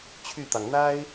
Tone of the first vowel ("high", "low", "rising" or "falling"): falling